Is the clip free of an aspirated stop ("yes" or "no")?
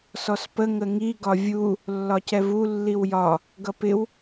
yes